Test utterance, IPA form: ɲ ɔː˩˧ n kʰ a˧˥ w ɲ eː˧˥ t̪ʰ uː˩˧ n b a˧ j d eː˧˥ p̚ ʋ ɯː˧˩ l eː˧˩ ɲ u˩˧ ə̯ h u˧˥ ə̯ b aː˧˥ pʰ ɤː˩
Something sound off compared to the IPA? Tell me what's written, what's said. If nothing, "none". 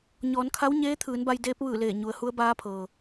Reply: uː˩˧ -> ɯː˩˧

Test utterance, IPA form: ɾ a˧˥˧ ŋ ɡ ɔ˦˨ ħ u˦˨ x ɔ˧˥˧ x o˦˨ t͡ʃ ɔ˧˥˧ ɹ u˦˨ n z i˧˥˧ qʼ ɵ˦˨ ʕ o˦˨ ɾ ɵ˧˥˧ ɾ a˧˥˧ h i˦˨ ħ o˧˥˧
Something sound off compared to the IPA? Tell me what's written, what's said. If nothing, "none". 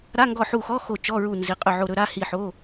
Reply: none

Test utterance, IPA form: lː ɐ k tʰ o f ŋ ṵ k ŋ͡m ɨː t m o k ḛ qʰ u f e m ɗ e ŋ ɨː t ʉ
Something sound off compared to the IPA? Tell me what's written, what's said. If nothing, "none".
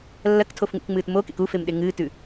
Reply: qʰ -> k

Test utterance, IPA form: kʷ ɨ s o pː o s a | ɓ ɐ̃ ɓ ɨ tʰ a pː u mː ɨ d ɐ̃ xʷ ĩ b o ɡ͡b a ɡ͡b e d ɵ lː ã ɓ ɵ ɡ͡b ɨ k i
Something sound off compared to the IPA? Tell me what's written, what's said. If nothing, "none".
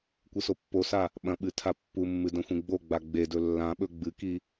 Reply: b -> ɡ͡b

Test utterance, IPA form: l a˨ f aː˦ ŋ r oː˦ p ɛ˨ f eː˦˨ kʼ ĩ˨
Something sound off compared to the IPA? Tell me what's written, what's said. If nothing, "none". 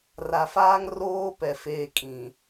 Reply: l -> r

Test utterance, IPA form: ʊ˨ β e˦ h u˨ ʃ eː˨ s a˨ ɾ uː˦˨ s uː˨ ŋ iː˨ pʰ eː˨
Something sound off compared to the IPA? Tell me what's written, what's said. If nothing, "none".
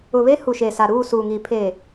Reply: none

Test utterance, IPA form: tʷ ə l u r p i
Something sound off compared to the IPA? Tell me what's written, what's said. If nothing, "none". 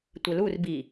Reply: p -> b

